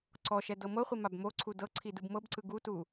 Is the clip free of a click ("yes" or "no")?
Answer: no